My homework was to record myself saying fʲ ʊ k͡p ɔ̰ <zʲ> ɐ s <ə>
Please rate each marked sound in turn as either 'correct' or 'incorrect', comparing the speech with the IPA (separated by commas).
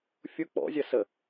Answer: correct, correct